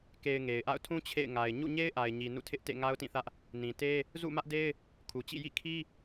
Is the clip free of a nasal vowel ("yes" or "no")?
no